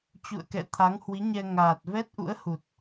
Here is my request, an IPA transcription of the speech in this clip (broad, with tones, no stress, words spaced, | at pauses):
t͡ɕṵ˧˨ə̯kɛ̰˧˨ t̪ʰa˨˦ŋhwi˨˦ɲɛ˧ ŋaː˨˩t̚ vɛ˦˥t̚ʔṵ˧˥ə̯hu˨˩t̚